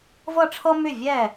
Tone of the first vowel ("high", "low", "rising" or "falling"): falling